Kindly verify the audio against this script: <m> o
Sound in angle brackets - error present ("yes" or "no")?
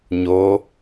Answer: yes